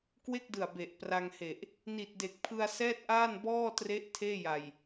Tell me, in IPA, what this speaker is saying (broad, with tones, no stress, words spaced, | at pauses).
kwe˥˩k̚dɯ˨˩a̯ be˨˩ʔpra˧ŋhe˨˩ʔ | ni˨˩t̚de˨˩k̚pʰɯ˧a̯ sɛː˥˩t̚ʔaː˥˩n bɔː˥˩tre˦˥ʔ tʰeː˥˩ja˨˩j